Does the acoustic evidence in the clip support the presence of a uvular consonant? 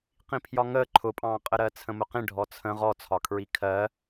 yes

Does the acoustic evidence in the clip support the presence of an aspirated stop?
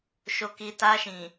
no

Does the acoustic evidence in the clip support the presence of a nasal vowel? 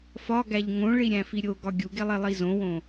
yes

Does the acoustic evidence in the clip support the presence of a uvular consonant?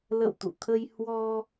no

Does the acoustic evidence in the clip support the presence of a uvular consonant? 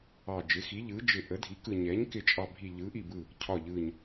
no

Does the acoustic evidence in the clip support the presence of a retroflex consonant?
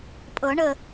yes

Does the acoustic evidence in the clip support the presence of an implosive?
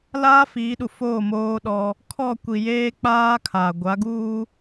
yes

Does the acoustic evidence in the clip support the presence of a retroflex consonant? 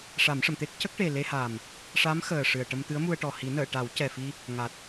yes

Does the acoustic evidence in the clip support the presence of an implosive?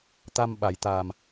yes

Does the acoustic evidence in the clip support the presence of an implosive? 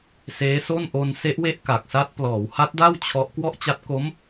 no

